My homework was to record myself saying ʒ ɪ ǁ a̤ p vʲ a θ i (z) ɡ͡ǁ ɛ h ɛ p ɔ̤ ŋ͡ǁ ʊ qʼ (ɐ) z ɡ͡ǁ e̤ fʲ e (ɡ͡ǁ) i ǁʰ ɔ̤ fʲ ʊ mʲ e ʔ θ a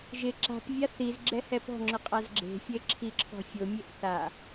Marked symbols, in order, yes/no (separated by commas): yes, no, no